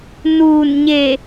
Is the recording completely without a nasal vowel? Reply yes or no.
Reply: yes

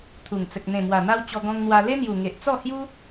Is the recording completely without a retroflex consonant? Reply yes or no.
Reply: yes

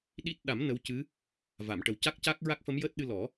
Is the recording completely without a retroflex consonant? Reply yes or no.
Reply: no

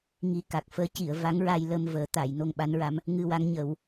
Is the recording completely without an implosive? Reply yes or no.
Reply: no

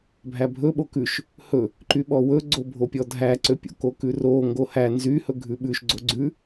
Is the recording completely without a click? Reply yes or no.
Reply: no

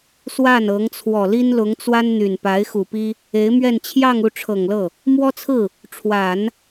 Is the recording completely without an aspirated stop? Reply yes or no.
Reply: no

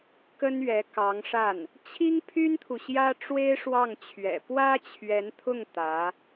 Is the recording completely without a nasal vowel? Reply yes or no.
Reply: yes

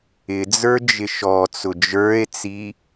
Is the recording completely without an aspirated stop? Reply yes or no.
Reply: yes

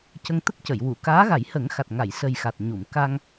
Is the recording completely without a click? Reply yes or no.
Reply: yes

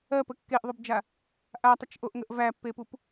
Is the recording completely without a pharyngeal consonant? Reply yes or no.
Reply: yes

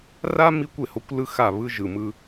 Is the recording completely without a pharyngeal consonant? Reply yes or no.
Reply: yes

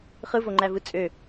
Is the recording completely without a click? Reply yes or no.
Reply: no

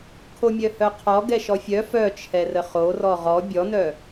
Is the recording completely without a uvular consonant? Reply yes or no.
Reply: no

